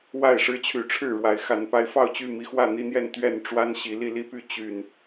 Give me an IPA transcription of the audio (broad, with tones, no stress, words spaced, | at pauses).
wa˥˨ɪ̯ʂɻ̩˦t͡ɕʰy˨˦ʈ͡ʂʰɻ̩˥˨ ɻwa˨˦ɪ̯xa˨˦n pa˨˦ɪ̯fɑ˥˨ʊ̯t͡ɕy˥˨ mi˨˦xwä˥˨n̪i˦n̪jɛ˥˨n t̪ɥɛ˥˨nʈ͡ʂwa˦n ɕi˨˦ li˥˨li˦py˥˨ t͡ɕy˨˩n